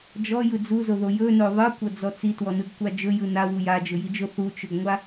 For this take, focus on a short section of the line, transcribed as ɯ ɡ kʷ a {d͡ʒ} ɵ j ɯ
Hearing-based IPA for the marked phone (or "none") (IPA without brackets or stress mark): d͡ʒ